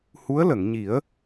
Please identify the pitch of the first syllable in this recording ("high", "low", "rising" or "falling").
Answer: rising